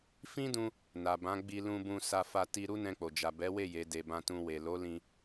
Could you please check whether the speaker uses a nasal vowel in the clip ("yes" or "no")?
yes